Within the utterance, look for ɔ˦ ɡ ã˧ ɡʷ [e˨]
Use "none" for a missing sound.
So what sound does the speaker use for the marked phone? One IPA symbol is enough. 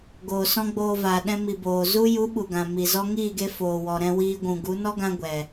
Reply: ɛ˨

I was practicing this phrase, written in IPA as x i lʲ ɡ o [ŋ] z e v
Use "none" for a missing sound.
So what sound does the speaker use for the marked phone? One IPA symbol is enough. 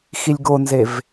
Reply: n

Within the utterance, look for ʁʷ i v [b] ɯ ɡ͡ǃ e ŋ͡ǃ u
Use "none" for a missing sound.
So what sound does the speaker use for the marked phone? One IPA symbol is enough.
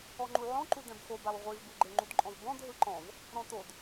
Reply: b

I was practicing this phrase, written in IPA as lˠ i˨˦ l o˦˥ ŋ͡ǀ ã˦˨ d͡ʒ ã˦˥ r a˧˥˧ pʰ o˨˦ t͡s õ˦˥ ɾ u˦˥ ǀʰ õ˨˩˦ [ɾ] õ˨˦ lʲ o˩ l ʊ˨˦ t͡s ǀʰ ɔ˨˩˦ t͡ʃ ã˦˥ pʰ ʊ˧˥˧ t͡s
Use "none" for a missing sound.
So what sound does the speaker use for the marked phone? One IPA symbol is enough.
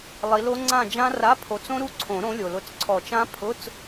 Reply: ɾ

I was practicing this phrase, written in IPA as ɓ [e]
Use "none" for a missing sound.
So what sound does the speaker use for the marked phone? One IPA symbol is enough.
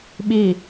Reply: i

